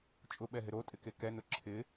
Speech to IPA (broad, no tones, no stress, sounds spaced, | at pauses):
t͡ʃʼ ʊ ɓ ɛ ɦ ɪ ɾ o tʼ ɪ k e k ɛ n ʊ ǁʰ ɪ